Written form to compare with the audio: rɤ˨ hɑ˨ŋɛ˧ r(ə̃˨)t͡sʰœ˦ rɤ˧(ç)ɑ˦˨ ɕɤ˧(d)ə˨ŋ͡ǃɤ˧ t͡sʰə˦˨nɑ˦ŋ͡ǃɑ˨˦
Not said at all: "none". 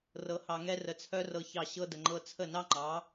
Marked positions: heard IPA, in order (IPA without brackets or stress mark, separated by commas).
ə˨, ç, d